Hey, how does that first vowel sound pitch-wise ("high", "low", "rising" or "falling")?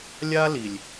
high